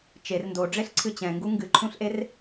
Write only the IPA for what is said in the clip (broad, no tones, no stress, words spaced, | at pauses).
t͡ʃer ndoɖ͡ʐeɬǀʰɨ t͡ɕɛ̃ŋɡu ŋɡɨǃʰũɬʔer